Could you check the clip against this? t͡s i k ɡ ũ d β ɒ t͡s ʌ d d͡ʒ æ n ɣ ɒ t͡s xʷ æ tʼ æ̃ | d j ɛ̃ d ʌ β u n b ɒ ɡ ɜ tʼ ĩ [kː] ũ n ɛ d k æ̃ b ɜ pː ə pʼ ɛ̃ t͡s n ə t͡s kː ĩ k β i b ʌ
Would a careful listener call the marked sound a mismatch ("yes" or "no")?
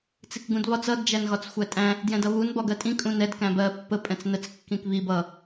yes